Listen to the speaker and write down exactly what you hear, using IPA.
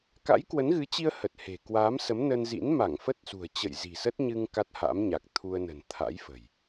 ka̰˧˥jkwə˨˦nɣɨ˨˦t͡ɕi˧ə̯ hə˨˩t̚he̤˨˩ kwaː˨˦msə˨˦mnə˧nzḭ˧˥n ma˧˩ŋfə˦˥t̚sṳ˨˩ə̯ t͡ɕə̰˧˨jzi̤˨˩sə˦˥t̚ ɲɨ˧ŋ ka˦˥t̚ha̰˧˥mɲa˨˩k̚ t̪ʰu˧ə̯nə̤˨˩n t̪ʰa̰˧˥jfə̤˨˩j

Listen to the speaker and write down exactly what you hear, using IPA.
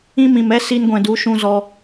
ĩ˦mĩ˨mɛ˦ si˧nɡʷɛ̃˨du˨˦ ʃũ˧zɔ˧

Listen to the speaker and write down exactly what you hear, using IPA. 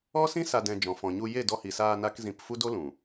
ɔ˦sĩ˦ sa˧dɛ̃˧d͡ʒɔ̃˨ fɔ̃˨ɲu˧ je˦˨dɔ˧hi˨saː˧ na˦kzĩ˧p fu˦do˦ lũ˨

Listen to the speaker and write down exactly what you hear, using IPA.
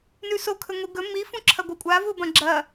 nʉsokʰɵ ŋʷiɡɵ mi fũǁʰɐɡʷɨkʷʼa vubɐ̃ɡ͡ǁɐ

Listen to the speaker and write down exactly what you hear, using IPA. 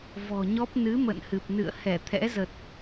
vɔ̤˨˩ɲɔ˦˥p̚ nɨ˨˦ mə̰˧˨nhɨ˨˩p̚nɨ̰˧˨ə̯ hɛ˧˩t̪ʰɛ̰˧˥zə˨˩t̚

